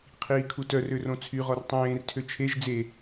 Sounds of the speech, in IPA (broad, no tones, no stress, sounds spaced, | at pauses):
qʰ iː kʰ u t œ r ø r õ t͡sʰ y ʁ ɔ r tˤ ẽː r tʰ ø t͡ʃʰ e ʒ d͡z e